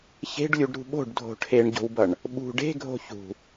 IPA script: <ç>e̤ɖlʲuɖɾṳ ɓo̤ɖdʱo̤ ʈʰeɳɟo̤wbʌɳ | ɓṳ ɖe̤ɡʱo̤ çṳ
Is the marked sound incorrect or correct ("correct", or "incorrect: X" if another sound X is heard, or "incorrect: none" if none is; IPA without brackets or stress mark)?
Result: correct